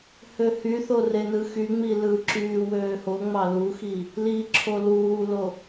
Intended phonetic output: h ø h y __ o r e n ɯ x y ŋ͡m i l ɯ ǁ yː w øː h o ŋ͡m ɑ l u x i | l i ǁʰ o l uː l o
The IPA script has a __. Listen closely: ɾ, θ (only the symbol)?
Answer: θ